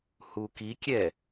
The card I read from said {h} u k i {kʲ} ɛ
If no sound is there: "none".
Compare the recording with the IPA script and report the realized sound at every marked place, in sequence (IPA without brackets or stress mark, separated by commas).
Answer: h, kʲ